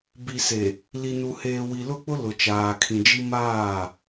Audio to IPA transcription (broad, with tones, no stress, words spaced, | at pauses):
bi˨ se˨ | li˨nu˨heː˨ wi˨lʊ˦˨k͡pʊ˦ lʊ˨t͡ʃaː˨kʰĩ˨d͡ʒi˦ maː˦˨